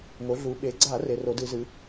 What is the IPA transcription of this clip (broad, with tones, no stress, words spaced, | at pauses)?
ŋo˩˧ɮu˩˧ɓe˩˧ɡ͡ǀa˧˩˧ re˩˧ro˩˧dɨ˧˩˧zɨ˩˧